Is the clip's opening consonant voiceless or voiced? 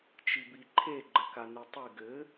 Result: voiceless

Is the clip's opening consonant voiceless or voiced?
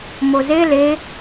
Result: voiced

